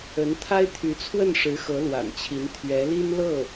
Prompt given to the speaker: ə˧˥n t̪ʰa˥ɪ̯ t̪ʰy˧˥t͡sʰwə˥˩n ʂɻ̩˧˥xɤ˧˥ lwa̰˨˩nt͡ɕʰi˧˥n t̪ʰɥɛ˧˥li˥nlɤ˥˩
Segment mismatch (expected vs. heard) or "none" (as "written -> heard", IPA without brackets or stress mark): none